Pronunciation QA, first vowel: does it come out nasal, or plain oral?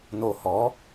oral